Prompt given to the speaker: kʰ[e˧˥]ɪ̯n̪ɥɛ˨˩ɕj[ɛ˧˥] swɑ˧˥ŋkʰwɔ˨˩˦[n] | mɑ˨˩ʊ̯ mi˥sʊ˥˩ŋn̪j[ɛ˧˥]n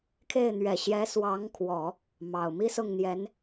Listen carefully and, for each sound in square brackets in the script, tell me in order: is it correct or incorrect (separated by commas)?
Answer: incorrect, correct, incorrect, correct